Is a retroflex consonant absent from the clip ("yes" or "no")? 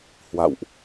yes